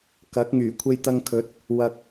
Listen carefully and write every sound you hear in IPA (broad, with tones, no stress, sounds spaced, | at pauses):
k ɐ˨˥ k̚ ŋ yː˨˩ kʷʰ e˧ j t̪ ɐ˧ ŋ kʰ ɵ˨˥ t̚ | w ɐ˨ k̚